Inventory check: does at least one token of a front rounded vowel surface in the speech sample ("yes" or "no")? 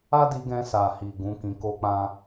no